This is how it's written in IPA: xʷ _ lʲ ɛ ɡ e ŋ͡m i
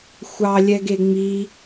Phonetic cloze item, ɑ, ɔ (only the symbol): ɑ